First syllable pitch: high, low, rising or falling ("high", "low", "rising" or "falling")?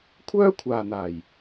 high